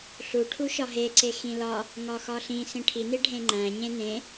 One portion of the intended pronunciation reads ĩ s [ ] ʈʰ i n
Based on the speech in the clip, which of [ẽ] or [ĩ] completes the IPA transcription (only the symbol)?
ĩ